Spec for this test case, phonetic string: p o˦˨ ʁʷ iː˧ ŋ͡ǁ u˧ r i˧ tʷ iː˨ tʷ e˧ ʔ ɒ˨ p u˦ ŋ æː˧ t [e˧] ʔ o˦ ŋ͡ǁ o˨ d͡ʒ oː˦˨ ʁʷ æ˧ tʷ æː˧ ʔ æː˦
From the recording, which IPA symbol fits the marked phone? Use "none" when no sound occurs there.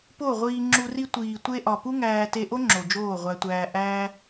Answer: e˧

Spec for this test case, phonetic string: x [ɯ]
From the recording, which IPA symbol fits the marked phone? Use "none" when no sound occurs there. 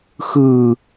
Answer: ɯ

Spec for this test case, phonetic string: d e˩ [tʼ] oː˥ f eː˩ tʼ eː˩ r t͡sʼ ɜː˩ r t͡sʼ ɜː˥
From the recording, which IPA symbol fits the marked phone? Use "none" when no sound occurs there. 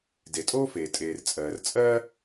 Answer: tʼ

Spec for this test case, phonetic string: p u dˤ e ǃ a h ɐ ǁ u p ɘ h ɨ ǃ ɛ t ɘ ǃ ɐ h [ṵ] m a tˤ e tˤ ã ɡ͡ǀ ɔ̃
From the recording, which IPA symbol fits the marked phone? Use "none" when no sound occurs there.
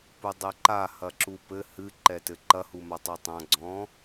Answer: u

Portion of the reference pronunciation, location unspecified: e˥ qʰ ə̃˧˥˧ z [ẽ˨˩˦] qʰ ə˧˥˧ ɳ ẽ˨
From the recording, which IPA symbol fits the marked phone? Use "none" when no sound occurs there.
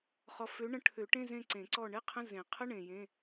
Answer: ẽ˨˩˦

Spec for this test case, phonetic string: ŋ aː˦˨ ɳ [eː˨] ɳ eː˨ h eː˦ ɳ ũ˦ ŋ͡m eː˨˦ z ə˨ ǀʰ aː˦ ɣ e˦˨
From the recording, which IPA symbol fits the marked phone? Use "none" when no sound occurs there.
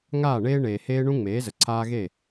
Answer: eː˦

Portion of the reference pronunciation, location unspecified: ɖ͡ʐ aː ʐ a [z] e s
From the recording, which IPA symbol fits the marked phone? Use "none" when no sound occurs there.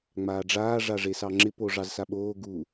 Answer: ʐ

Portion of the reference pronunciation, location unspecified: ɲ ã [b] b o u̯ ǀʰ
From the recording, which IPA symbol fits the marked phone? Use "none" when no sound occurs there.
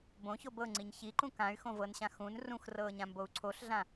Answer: m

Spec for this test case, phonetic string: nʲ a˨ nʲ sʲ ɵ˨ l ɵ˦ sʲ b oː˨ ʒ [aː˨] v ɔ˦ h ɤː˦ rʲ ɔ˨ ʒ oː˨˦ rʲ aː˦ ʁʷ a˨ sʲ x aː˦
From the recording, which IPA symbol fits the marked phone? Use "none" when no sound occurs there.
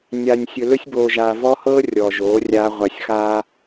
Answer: aː˨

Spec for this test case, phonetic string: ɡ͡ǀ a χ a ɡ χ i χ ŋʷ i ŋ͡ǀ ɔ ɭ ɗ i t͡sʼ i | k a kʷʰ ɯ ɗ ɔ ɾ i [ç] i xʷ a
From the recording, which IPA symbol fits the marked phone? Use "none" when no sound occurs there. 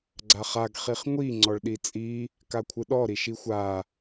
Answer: ʃ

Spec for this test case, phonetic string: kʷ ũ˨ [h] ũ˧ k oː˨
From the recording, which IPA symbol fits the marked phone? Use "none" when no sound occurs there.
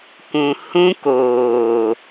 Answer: h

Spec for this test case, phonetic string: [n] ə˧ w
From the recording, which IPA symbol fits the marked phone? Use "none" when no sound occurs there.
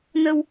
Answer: n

